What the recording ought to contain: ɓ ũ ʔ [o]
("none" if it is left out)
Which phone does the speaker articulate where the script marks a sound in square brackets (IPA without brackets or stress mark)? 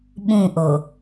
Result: o